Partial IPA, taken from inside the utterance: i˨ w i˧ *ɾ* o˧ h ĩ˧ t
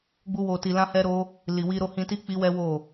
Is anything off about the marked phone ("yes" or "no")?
no